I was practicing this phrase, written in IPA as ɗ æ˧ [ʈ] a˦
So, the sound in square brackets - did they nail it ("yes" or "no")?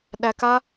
no